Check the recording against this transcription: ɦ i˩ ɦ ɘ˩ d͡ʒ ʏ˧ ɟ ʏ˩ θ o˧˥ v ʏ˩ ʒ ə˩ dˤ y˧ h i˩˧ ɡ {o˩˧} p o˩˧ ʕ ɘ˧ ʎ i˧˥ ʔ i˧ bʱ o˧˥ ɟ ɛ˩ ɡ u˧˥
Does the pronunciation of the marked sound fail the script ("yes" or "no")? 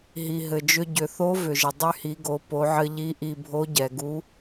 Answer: no